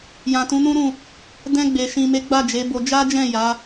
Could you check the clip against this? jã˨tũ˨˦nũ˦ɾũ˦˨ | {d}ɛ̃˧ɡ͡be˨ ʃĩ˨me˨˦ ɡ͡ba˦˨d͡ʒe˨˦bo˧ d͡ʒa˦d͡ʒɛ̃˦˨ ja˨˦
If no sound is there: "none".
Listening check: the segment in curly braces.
d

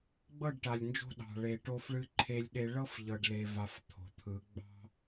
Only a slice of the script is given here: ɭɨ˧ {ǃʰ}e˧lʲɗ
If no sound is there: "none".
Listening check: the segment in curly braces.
ǃʰ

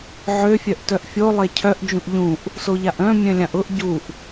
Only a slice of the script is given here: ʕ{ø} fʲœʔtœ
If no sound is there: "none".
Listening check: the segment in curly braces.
ø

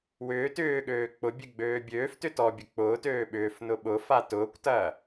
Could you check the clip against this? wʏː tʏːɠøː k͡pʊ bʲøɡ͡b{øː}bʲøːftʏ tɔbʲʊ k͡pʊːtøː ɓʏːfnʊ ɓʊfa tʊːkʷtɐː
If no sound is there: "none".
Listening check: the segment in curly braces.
øː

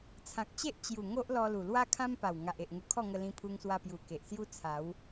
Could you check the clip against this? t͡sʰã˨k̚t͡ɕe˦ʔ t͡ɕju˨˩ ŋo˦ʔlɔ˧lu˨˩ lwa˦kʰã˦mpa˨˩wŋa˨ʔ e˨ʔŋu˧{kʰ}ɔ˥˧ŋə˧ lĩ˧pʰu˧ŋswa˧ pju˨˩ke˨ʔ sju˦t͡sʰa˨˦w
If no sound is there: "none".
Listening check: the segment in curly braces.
kʰ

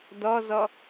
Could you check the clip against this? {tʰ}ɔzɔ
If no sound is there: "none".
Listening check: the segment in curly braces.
d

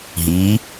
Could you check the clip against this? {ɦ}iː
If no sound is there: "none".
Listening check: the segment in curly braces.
ɦ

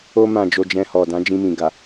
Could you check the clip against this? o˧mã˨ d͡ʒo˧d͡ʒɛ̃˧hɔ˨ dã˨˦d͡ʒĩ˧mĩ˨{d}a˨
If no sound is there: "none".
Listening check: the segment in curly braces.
ɡ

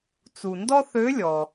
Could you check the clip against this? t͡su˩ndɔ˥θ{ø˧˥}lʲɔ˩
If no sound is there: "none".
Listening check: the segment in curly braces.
ø˧˥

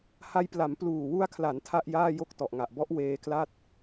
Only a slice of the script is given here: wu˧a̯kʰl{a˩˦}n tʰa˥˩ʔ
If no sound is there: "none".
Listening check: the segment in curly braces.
a˩˦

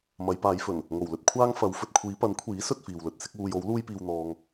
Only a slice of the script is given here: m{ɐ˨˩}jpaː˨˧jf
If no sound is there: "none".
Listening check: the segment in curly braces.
ɐ˨˧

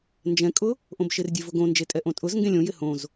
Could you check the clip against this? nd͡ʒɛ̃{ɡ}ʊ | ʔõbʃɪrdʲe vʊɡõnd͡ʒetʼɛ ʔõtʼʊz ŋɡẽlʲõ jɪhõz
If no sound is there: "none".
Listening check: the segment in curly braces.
kʼ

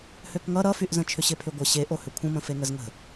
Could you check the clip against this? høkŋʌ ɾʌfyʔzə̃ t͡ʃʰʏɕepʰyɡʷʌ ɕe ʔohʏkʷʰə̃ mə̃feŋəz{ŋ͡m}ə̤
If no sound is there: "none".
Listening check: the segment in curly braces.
ŋ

